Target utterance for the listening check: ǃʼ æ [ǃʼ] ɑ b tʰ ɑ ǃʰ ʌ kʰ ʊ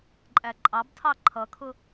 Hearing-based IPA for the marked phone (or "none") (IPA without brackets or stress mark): ǃʼ